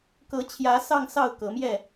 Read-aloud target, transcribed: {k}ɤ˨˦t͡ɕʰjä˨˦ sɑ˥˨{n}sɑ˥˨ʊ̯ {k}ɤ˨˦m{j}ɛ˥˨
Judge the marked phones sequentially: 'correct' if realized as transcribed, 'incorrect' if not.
correct, incorrect: ŋ, correct, correct

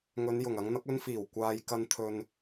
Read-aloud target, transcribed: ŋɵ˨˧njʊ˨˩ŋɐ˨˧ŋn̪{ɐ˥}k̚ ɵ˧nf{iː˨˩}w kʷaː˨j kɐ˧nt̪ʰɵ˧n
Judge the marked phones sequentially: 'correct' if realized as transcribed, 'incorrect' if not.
incorrect: ɐ˨˥, correct

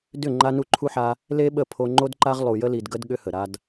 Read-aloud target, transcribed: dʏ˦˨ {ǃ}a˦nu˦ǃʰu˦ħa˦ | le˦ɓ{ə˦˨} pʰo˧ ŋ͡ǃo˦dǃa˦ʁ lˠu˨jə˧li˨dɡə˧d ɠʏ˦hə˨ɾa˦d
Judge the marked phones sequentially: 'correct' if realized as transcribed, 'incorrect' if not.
incorrect: ŋ͡ǃ, correct

